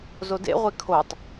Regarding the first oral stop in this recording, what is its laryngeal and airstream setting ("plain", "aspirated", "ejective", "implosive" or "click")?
plain